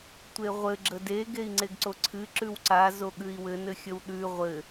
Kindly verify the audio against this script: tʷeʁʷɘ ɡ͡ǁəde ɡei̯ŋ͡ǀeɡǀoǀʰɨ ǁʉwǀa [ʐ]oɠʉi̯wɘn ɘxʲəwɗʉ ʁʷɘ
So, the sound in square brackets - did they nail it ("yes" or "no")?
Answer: no